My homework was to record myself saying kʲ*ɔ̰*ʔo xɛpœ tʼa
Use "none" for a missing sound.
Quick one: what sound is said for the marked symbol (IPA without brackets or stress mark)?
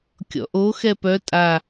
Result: ɔ̰